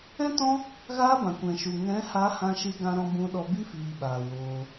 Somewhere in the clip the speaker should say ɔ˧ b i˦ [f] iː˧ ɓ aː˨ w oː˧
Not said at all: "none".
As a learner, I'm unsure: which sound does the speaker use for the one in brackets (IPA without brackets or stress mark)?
f